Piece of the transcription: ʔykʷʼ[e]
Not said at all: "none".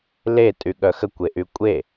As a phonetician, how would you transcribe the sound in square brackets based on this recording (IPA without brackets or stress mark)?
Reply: e